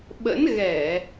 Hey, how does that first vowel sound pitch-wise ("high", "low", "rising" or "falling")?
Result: rising